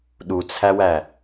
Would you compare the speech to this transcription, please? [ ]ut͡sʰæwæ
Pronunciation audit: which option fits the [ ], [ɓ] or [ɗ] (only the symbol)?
ɗ